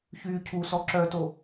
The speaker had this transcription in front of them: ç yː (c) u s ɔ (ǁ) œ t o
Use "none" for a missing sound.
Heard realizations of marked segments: cʰ, ǁ

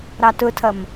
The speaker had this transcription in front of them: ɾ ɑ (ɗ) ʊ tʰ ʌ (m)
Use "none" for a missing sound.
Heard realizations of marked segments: t, m

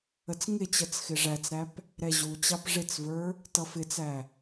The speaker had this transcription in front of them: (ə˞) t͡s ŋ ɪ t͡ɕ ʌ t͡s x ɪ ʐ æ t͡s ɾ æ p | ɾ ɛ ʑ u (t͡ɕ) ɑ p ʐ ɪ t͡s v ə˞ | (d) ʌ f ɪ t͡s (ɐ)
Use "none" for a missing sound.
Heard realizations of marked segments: ə, t͡ɕ, t, æ

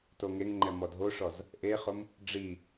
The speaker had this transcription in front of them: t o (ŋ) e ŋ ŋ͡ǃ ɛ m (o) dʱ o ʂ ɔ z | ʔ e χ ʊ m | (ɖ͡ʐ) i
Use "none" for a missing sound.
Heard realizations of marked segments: ŋ, ɔ, ɖ͡ʐ

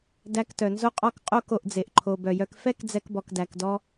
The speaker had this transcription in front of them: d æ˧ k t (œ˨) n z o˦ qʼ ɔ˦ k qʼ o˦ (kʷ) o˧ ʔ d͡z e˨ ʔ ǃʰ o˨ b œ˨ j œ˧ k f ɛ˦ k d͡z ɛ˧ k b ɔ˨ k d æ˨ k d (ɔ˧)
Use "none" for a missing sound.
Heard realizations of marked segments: œ˨, k, ɔ˧

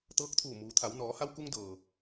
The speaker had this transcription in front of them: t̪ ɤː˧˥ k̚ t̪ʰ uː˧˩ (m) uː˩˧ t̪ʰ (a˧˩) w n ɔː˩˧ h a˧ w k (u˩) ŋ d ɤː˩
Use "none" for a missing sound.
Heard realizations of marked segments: m, a˩˧, u˧

